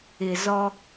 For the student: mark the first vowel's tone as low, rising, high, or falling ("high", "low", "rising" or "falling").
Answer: low